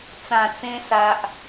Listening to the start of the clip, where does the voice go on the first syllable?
low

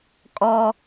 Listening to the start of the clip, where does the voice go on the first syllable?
high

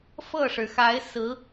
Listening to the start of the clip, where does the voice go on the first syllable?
falling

